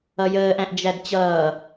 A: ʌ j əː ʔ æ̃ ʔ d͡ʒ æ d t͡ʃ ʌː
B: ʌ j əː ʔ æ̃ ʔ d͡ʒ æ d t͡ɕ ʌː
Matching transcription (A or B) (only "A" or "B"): B